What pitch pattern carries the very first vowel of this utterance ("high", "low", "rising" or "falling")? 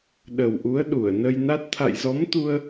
low